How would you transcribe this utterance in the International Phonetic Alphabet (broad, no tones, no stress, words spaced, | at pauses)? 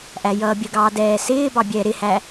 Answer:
ʔæjʌːbʲəɡɑː dɛːsɪːbɑ bʲɛːɾɪhæ